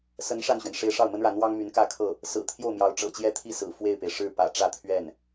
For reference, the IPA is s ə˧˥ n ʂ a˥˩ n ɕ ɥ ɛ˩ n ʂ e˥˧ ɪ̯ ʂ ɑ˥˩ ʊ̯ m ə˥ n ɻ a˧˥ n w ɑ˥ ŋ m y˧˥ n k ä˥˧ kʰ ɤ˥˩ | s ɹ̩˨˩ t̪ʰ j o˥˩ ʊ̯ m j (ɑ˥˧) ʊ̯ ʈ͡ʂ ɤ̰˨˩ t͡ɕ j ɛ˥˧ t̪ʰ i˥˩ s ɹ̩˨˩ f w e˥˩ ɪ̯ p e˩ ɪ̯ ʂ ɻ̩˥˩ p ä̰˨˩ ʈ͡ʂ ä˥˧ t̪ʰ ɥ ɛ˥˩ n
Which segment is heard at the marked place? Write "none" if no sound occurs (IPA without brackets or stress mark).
ɑ˧˥